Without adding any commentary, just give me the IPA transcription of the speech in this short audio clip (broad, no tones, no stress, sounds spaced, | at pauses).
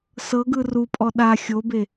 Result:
s ɤ ɡ ɯ r u pʼ ɔ ɗ a xʲ o b e